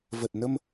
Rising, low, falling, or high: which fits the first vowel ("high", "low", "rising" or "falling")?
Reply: low